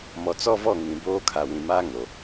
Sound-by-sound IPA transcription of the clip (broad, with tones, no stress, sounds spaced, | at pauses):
m ɔ˨ t͡s ɔ˦ v ɔ˦˨ ŋ ĩ˨ b oː˦ kʰ a˨ w ĩ˨ m aː˦ ŋ o˨